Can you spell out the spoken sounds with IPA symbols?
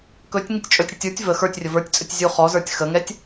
k ɵ tʲ ŋ i tʲ t͡ʃʼ ɵ tʲ ɽ ɛ tʲ ə˞ tʲ v ə x ə˞ tʲ rʲ ə v ə˞ tʲ t͡sʼ ɵ tʲ zʲ u χ ɔ z ə˞ tʲ x ə ŋ ɛ tʲ

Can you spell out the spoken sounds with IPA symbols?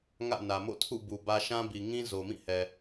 ŋ ä̰˦˨ n ä˨ m o̰˦˨ tʰ ṵ˦˨ b u˨ b ä˦ ʃ ã˦ b i˨ ŋ ĩ˦ z o˨ m ĩ˦˨ h ɛ˨

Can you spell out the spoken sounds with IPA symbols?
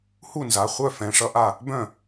h u˥˩ n z a˩˧˩ χʷ œ˥˩ f ɛ̃˩˧˩ ʂ ʌ˥˩ ʔ a˥˩ | b œ̃˥˩

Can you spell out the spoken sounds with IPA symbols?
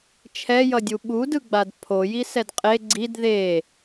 t͡ʃʰ ɛ j ʌ dʲ u ɓ u d ɯ ɡ͡b a d pʰ o j i s ɛ d qʼ e ɡ͡ǀ i d ð e

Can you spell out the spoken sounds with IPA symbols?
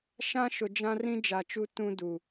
ʃ ã˦ ʃ ʊ˨ d͡ʒ ã˦ r ĩ˦ d͡ʒ a˨ t͡ʃ u˦ t ũ˦ d u˨

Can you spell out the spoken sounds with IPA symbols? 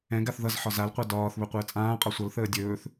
ɛ̃ ɡ a θ ð ʌ z ħ ɒ z a l qʷ a d ɒː θ β ɵ qʷ əː t͡sʼ ãː qʼ ɒ sʷ ʌ l θ əː dʲ ɵː θ

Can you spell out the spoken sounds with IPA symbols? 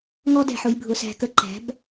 ŋ ɔ˦ d ɛ̤˧ ħ ʊ˧ j bʱ ʊ˧ s æ̤˧ k ə˧ ǃ æ̤˨˦ b

